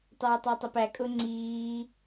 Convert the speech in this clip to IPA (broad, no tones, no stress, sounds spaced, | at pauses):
tˤ ɛː tˤ ɑ tˤ ə p æ kʼ ʊ ŋ͡ǀ iː